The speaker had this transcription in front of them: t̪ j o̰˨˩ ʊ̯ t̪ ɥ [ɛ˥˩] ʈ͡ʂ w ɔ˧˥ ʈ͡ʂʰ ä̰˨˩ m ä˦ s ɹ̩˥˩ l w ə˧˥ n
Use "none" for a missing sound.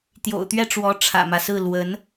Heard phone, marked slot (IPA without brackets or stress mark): ɛ˥˩